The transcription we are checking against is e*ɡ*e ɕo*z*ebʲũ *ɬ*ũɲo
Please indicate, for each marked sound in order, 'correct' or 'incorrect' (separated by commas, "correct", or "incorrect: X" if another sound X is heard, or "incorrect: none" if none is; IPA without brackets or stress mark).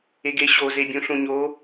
correct, correct, correct